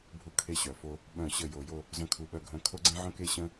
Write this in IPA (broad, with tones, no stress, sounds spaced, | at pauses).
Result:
bʱ u˦˨ kʰ e˦˨ ɕ œ˩˧ f o˦ | ɓ œ̃˧˩˧ ɕ ə˧˩˧ j o˩˧ j o˦˨ | z œ̃˦˨ kʰ u˧˩˧ ɓ œ˦˨ ɡʱ œ̃˦˨ kʰ o˦ ɡ͡ǀ ẽ˦ ʕ œ̃˦ k e˦ ɕ ə̃˦